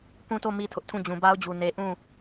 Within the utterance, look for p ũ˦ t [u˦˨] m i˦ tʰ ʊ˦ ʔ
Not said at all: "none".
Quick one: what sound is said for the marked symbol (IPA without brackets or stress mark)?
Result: o˦˨